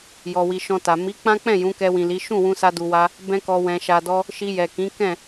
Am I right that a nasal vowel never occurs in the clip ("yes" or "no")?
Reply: no